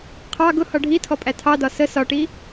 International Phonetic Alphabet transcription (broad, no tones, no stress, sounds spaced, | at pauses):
qʰ ɑ ɡ ʊ h ɒ ɖʱ i tʰ ɔ pʼ æ tʰ ɑ d ɒ s ə s ɒ ʈ i